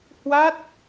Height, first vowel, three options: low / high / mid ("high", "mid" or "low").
low